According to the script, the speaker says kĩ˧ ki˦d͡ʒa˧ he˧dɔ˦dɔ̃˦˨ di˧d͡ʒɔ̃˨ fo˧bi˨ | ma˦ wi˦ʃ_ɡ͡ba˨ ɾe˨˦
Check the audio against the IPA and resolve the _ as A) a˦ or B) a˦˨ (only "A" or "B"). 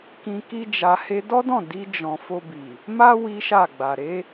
B